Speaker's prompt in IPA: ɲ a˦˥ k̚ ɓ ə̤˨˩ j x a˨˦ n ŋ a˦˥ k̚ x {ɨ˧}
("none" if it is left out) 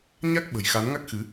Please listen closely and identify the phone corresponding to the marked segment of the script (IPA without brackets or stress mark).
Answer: ɨ˨˦